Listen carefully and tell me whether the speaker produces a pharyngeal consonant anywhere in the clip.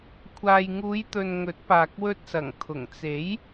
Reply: no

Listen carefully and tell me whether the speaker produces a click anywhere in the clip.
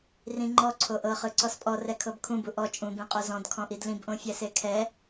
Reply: yes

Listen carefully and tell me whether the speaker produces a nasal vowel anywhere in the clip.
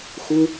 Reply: no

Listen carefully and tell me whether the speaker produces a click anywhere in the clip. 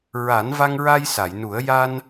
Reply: no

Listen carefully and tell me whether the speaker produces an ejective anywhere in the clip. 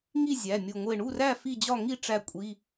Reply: yes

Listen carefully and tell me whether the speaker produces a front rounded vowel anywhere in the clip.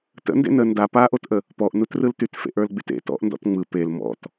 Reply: yes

